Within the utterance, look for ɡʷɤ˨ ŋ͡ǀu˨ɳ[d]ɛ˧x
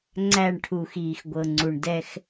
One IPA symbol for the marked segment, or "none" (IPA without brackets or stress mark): d